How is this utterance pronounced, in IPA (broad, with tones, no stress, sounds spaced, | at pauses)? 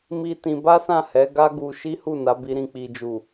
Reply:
m i˧ t ĩ˧ b a˦ s ã˦˨ h ɛ˨˦ ɡ a˦ ɡ u˧ ʃ i˦ h u˦˨ n a˨˦ b i˧ ɾ ĩ˨ k͡p i˨ d͡ʒ u˨